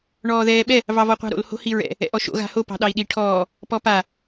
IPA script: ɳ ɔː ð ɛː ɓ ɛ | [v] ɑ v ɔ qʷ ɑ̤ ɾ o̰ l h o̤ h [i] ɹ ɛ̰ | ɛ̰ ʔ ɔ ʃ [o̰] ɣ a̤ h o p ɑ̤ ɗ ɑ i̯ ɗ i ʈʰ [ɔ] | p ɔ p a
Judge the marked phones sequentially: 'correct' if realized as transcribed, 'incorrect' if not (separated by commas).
correct, correct, correct, incorrect